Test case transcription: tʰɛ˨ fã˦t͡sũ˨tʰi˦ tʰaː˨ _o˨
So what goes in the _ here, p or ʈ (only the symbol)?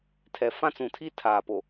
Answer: p